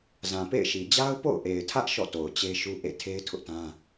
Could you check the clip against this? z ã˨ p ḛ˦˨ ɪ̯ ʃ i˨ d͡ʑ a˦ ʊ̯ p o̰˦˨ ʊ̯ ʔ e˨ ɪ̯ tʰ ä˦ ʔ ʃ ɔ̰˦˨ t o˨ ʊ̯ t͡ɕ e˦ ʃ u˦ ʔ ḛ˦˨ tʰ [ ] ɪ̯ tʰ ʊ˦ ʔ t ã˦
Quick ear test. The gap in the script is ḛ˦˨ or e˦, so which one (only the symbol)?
e˦